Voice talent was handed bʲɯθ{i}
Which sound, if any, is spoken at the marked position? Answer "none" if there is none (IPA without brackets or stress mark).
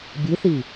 i